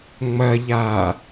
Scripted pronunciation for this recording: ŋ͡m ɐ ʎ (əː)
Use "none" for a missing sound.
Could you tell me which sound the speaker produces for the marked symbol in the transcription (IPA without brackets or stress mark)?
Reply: aː